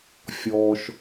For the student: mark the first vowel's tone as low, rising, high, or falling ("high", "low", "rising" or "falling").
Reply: low